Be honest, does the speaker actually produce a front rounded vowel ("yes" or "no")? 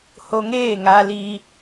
no